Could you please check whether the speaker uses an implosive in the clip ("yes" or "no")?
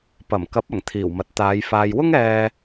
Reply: no